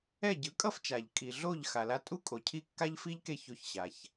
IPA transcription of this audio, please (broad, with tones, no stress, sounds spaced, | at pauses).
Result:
ɛ˥˩ ɟ ɯ˩˥ kʼ ʌ˥ f t͡ʃ a˩ ʎ kʼ i˩ ɮ o˥˩ ʎ x a˩ l a˧ tʼ u˥ kʼ o˩ cʰ i˥˩ kː a˥ ʎ f i˥ ʎ k e˥˩ ç o˧ ç ɕ a˩ ç